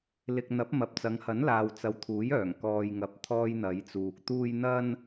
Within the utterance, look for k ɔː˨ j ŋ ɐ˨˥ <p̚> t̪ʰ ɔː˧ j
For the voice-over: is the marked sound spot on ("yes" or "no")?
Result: yes